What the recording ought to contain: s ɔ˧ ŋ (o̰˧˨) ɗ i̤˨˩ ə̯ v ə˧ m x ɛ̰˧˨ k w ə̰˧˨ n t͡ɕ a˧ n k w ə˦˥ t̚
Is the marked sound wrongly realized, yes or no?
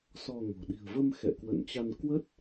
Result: yes